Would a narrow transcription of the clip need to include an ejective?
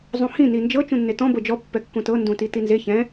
no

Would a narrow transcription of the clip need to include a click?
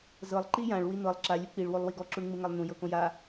yes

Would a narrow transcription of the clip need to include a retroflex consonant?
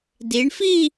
yes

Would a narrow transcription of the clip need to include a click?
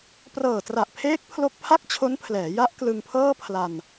no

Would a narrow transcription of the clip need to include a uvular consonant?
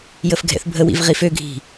yes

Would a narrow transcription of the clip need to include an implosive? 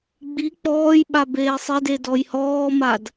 yes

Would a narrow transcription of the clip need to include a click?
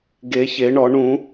no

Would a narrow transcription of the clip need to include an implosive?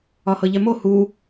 no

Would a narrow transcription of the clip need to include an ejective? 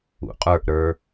yes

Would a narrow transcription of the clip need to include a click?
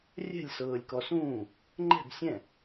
yes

